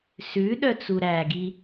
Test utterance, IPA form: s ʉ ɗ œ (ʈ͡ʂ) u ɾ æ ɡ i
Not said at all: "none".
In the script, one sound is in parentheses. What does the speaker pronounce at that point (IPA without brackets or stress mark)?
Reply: t͡s